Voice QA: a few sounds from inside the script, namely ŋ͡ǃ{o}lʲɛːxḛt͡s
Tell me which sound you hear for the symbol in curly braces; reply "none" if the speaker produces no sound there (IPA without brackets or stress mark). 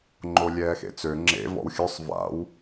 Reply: o